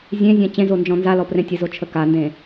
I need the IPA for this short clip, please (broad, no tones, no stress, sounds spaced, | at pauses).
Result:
zʲ ẽ zʲ ã t͡ɕ ẽ z o n d͡ʒ ɔ̃ n z a l ɔ p r ẽ tʲ ə z o t͡ʃʰ ə k a n d ẽ